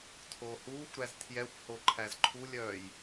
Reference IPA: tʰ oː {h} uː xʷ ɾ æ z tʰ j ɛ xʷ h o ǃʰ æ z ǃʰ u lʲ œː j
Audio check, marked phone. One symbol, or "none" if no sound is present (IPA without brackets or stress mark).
h